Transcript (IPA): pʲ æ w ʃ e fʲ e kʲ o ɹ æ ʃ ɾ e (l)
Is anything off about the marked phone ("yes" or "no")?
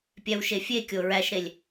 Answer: yes